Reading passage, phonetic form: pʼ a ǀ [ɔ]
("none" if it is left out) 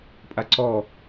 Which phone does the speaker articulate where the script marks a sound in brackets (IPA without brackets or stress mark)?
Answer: ɔ